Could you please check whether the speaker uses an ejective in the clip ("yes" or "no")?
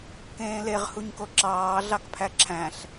no